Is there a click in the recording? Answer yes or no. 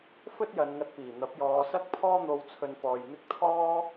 no